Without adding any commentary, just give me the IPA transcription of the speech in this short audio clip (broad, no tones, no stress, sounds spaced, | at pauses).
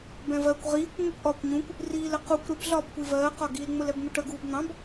b ɛ̃ v ɜ kʷ ʁ iː kʷ ŋ͡m ʊ kʷ ʔ ɒː kʷ ɲ ũ kʷ | r iː l ə q u kʷ ɾ ɪ b ɮ ɒː b kʷ i v ɜː q ɒ ɡ i l ŋ͡m ʊ l ɛ b n̪ ʊ ʈ ə ɡ uː b n̪ ɑ̃ b